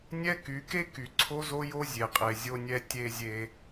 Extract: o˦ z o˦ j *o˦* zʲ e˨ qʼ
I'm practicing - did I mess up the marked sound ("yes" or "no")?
no